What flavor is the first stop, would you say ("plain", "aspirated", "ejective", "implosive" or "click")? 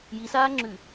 click